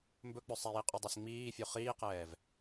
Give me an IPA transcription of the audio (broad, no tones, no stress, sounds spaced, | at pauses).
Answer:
m b ɵ k͡p ɵ sˤ ɛ j i qʼ ɵ dˤ ɜ s ŋ͡m iː fʲ u χ iː q ɛː v